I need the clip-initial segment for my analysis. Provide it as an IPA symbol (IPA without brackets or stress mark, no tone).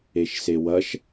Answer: e